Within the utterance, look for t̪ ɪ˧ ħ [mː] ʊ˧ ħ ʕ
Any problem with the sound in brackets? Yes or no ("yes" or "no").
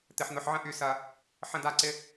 yes